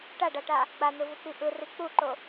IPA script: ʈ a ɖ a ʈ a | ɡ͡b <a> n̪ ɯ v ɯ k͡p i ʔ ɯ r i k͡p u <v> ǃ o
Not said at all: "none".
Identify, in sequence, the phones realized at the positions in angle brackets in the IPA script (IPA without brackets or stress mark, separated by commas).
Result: a, none